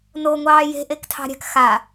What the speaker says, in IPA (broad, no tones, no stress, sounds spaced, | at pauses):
n o ŋʷ ɑː j e̤ ʔ e k tʰ ɑ̤ ɾʲ a̤ k x a